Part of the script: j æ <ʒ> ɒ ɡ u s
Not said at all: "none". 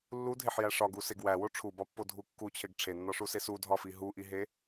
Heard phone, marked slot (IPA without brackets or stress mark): ʂ